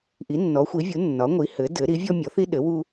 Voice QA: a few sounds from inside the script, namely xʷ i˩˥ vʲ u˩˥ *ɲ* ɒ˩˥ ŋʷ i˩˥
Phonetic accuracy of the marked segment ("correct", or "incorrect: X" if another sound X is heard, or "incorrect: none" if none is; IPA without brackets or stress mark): incorrect: nː